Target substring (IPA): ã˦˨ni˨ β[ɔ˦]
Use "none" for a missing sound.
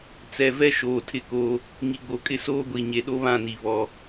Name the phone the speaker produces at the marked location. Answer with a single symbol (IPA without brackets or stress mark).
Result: ɔ˦